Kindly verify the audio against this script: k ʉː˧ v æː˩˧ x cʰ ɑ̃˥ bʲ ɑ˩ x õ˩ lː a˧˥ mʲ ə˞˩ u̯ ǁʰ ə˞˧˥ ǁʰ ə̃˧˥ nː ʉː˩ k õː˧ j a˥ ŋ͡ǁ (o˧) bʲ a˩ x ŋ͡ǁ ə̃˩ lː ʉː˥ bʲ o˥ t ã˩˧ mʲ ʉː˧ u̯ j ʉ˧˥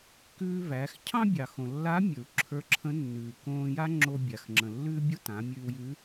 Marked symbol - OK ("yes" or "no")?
yes